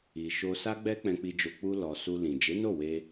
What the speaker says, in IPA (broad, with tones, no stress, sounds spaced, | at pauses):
i˨ ʃ o˧ s a˦ ɡ͡b ɛ˦ k͡p ɛ̃˧ k͡p i˧ d͡ʒ o˧ k͡p u˧ l ɔ˨ s u˧ l ĩ˨ d͡ʒ e˨˦ n o˦˨ w e˧